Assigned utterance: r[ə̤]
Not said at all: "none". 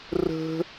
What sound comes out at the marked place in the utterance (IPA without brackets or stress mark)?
ə̤